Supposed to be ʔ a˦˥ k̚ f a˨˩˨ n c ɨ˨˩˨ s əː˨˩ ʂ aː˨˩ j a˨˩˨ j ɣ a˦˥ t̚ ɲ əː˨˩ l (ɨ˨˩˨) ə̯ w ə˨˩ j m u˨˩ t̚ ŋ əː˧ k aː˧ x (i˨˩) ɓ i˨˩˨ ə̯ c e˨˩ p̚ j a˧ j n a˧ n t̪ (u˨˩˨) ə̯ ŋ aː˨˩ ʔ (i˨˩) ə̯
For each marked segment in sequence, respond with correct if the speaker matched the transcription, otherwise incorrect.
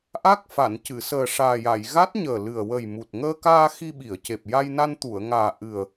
incorrect: ɨ˨˩, incorrect: i˧, correct, incorrect: ɨ˨˩

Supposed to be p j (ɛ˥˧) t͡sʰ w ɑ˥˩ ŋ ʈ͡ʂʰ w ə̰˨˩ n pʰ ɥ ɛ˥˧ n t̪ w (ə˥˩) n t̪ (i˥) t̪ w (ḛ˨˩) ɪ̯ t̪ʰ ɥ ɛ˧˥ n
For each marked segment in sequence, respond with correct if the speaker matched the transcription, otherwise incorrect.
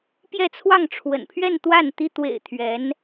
correct, incorrect: a˥˩, correct, correct

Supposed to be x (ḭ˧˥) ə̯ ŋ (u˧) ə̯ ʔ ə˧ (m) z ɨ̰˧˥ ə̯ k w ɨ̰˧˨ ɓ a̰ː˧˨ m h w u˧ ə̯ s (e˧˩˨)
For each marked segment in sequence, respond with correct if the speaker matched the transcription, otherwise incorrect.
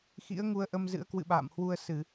correct, correct, correct, incorrect: ɨ˧˩˨

